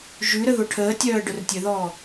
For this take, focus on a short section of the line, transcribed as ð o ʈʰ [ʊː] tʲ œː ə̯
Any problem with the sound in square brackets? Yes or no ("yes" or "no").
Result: yes